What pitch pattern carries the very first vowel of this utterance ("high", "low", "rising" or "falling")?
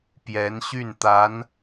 rising